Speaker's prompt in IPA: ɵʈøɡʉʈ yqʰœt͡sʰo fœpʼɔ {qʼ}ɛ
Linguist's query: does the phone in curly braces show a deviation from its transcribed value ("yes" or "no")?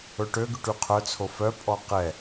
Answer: yes